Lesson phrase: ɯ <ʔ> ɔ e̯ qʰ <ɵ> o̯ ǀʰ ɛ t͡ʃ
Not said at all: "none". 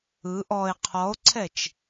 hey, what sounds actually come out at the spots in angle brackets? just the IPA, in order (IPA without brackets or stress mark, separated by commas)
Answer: ʔ, ɔ